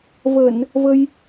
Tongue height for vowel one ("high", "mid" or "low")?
mid